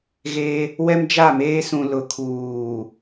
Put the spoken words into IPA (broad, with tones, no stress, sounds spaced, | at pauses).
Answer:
ɣ e˦ | w ɛ˦ m d͡ʒ a˦˨ m eː˦ s ũ˨ l ʊ˨ kʰ uː˨